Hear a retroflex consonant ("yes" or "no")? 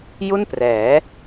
no